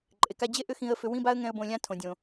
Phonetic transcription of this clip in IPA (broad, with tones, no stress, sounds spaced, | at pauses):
ǃʼ e˨ k a˧ d͡ʑ e˦ ʔ ʏ˦ x ĩ˧ ə̯ f ʏ˧ w ĩ˦ b a˦ ə̯ ŋ ɛ̃˧ ə̯ b õ˧ lʲ ã˦ tʰ õ˨ dʲ õ˨